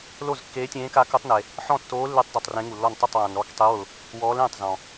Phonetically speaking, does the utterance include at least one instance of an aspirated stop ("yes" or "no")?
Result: no